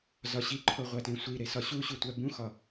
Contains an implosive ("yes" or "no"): no